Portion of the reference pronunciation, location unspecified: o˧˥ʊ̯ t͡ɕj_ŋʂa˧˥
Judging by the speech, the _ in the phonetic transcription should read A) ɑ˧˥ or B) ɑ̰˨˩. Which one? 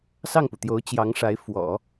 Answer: A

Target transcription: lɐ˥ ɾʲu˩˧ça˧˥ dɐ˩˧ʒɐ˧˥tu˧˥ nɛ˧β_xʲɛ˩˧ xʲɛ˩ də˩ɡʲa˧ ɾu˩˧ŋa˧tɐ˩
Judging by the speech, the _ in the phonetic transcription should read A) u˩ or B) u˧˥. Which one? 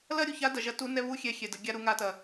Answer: B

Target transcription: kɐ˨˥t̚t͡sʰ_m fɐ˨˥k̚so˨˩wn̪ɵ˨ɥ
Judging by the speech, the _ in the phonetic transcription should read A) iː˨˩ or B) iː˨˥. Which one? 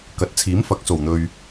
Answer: B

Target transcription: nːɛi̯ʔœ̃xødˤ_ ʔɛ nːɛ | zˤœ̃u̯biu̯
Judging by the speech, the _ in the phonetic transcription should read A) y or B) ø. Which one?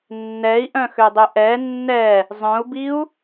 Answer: B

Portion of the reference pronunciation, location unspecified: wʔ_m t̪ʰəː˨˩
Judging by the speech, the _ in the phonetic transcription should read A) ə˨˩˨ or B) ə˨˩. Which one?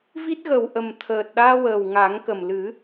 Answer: B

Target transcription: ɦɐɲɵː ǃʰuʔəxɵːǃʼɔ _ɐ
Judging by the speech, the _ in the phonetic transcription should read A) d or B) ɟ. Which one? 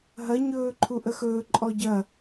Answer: B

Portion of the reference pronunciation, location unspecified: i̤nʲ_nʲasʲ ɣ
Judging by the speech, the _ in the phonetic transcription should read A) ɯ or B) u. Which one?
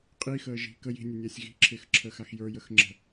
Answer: A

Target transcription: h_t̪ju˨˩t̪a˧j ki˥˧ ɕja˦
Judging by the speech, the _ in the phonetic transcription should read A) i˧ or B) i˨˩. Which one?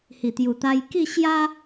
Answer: B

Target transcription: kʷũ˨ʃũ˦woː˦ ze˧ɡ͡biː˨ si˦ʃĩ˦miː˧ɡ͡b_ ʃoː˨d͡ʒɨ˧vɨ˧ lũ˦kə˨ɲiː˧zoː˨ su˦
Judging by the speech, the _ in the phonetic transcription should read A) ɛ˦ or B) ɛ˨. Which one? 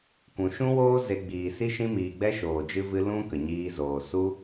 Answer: A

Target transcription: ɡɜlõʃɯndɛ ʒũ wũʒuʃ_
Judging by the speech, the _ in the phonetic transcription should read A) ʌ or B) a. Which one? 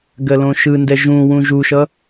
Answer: A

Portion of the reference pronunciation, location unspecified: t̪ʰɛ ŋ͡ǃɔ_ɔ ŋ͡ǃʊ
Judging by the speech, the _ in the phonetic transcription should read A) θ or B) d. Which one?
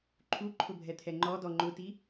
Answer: B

